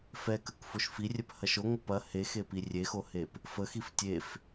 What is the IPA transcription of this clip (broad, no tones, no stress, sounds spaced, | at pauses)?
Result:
f ɛ k ə k f o ʃ f i rʲ ɛ p h ɐ ʃ o ŋʷ ə p ɐ h e x e p i rʲ e x o h e p | f ə x i f tʲ e f